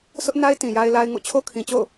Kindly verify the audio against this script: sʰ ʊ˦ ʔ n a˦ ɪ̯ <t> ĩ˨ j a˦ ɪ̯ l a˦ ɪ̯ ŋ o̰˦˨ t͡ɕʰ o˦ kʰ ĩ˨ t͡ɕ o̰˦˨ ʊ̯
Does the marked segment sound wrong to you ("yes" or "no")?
no